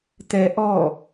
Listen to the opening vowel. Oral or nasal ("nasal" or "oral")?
oral